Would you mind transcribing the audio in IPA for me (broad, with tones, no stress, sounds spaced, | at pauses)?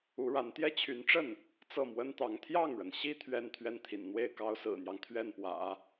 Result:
u˧˥ ɻ a˧˥ n t̪ j ɛ˥˩ t͡ɕʰ y˧˥ n ʈ͡ʂ ə˥˩ n | t͡s ɤ˥˩ m w ə˥ n t̪ ɑ˧˥ ŋ t̪ʰ j ɑ˥˩ ŋ ɻ ə˩ n ɕ i˥ t̪ʰ ɥ ɛ˥ n t̪ʰ ɥ ɛ˥˩ n t̪ʰ ḭ˨˩ n n̪ w e˥˩ ɪ̯ k ɑ˥ ʊ̯ s ɹ̩˨˩ n̪ j ɑ˦ ŋ t̪ʰ ɥ ɛ˥˩ n p w ä̰˨˩˦